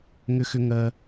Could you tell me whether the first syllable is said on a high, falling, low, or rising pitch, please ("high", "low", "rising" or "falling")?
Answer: high